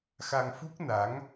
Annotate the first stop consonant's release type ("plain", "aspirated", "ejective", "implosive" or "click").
plain